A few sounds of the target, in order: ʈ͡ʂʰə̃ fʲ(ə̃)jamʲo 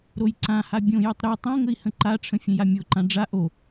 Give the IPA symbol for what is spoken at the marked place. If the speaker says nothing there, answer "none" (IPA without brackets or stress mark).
ə̃